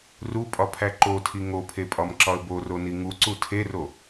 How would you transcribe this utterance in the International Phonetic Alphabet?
rupʼɒpʰæ ǃotʰi ŋopʰepʼɒmǁɒə̯ boroni ŋuǀu tʰero

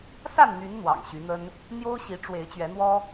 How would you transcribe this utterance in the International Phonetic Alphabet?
sa˥˨nn̪y˨˦n n̪wɑ̰˨˩ŋɕy˨˦n̪ə˦n | n̪jo˦ʊ̯ɕi˨˦ ʈ͡ʂwe˨˦ɪ̯ t͡ɕɥɛ˨˦n̪wɔ˦

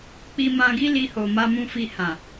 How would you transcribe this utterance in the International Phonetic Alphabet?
k͡pi˧mã˧ ɡi˦ li˧ho˨ ma˧mũ˧fi˧ hã˨

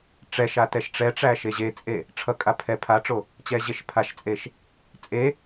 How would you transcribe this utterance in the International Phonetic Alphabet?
ʈ͡ʂɛʃa tɛʃʈ͡ʂɛʈ͡ʂæ ʃeʑet͡sʼe | ʈ͡ʂʰʌkʼa pʰɛ pʰaʈ͡ʂo | t͡ɕɛʑeʃpʰaʃt͡sʼeʃ | t͡sʼe

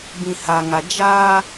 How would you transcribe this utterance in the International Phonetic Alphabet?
bĩ˨ha˨ŋa˨ d͡ʒaː˦

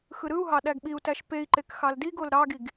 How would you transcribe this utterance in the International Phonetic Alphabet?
xɯɾɯu̯ɦɑ ɗæɡɓiu̯tæʃ pei̯ǃek xɑldiɡol ɾɑɡiɡ

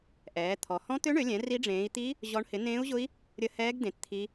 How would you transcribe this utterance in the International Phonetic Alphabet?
ʔɛː˨˦t̪ʰɔ˨˦ hɔ̃˦˥t̪ø˦˥ɳø˨˦lʲɛ̃˨˦ ri˦˥ɖ͡ʐẽː˨˦i̯ t̪i˦˥ | ʑɔ˦˥ɳ hɪ˨˦nẽː˦˥u̯ʑʊ˦˥i̯ | ɾʲə˦˥hɛː˦˥ɡdẽ˨˦t t̪ʰi˦˥

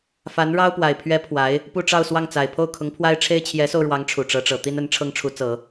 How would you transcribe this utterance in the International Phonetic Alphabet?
fa˧˥nɻɑ˥ʊ̯pwa˨˩ɪ̯ pʰɥɛ˧˥ pʰwa˧˥ɪ̯ | pu˥˧ʈ͡ʂɑ˥˧ʊ̯swɑ˥˩ŋt͡sa˨˩ɪ̯ pʰo˥˩ʊ̯kʰʊ˧˥ŋpʰwa˥ɪ̯ʈ͡ʂʰe˥ɪ̯ t͡ɕʰjɛ˧˥so˧ʊ̯ɻwɑ˧˥ŋ ʈ͡ʂʰu˨˩ʈ͡ʂɤ˧˥ʈ͡ʂɤ˨˩ t̪i˥nə˧˥n ʈ͡ʂʰɤ˥ŋʈ͡ʂʰu˧˥t͡sɤ˨˩˦

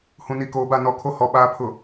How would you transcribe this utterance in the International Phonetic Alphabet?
hũ˨ni˨ koː˨ba˦˨nɔ˨kʰo˦ hɔ˨ ɓaː˨pʰʊ˨

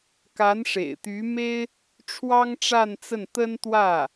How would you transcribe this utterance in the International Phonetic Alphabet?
ka˧˥nʂḛ˨˩ɪ̯t̪y˧˥me˥ɪ̯ | ʈ͡ʂʰwɑ˥ŋʈ͡ʂa˥˧nt͡sə˥˩n t̪ə˥nt̪wä˥˩

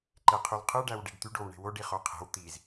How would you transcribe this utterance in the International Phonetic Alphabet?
ǃeqʰylqʰɯ ɖæwɖiɖt̪yɖ owɳe̤woɖ iχoqʰe̤w t̪iz

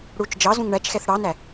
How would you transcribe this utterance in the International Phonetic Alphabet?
ɽut͡ʃ d͡ʒɑ zũŋɳæt͡ʃxɛθ ɽɑnæ

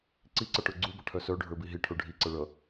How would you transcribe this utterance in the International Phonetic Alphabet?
ǀiǀʌʈə˞ ɡ͡ǀubʌʈʰœ sœɖʱə˞bi ɦiʈʰə˞ ɖʱiǀʌ ɭʌ

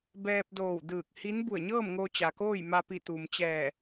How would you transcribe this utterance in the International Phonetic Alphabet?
bɛː˧p̚doː˧˩w dɯː˧˩k̚hi˧˥n bu˧˩ə̯ɲɤː˥˨mŋoː˧ t͡ɕa˩koː˥˨jma˧pi˧˩ t̪u˩mt͡ɕɛː˧˩

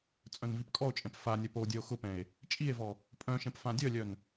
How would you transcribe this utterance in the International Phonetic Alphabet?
t͡sʼœ̃nvipkʼɔo̯t͡ʃʼɛ̃p fanʲœp o dʲœo̯xʊpɛ̃e̯ | t͡ʃʼie̯vɔ | pʼœ̃ʃɛ̃p fãdʲœlʲœn

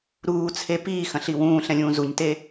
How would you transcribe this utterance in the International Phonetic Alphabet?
ɾuːt͡sʰe piːxɐ̃ɬi wũːɬɛ̃lʲũː zuɲte

